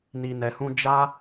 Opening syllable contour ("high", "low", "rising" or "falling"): low